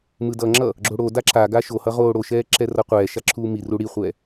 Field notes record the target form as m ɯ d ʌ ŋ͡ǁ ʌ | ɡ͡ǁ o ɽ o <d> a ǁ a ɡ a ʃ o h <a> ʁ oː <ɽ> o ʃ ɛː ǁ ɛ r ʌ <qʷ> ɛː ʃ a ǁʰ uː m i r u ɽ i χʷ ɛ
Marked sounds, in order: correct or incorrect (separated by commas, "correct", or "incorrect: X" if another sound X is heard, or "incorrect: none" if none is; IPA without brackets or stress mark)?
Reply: correct, incorrect: ʌ, correct, correct